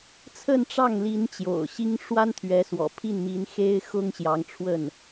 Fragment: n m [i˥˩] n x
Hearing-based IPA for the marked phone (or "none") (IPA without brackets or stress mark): i˧˥